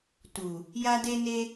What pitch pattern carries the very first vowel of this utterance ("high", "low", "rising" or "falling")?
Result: low